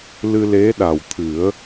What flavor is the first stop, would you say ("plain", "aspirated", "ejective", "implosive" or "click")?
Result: implosive